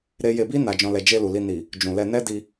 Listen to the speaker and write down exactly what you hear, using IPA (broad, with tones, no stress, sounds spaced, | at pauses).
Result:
ɾ e˦ j e˧ b i˦ n a˧ d͡ʒ ɔ̃˧ l ɛ˧ d͡ʒ e˧ l u˨ l i˧ n i˨ | d͡ʒ ũ˨ l ɛ˧ n ɛ˦ d i˧